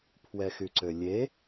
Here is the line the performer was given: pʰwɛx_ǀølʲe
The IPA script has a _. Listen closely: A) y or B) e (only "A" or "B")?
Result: A